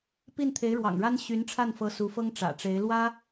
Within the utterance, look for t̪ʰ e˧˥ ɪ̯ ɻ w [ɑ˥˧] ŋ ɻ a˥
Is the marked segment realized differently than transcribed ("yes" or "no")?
yes